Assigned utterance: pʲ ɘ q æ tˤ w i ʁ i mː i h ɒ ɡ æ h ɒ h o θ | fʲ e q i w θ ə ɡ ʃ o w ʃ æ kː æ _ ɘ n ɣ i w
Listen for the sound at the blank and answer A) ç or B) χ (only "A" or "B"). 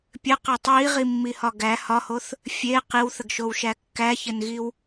A